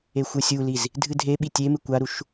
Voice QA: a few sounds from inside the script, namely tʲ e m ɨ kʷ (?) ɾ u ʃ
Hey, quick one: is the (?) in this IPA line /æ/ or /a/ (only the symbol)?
a